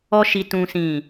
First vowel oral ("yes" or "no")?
yes